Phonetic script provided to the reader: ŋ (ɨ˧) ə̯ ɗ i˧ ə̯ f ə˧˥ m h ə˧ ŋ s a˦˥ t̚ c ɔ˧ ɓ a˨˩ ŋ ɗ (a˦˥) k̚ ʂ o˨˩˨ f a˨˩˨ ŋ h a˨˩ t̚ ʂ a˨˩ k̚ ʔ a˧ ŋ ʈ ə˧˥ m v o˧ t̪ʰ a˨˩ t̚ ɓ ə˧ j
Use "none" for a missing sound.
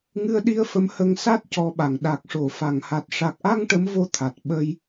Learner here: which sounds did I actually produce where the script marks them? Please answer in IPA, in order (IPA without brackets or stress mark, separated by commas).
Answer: ɨ˧, a˨˩